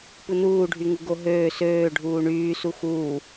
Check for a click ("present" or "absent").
absent